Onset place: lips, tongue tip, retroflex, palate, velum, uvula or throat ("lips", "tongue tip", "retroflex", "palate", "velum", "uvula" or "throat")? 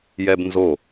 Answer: palate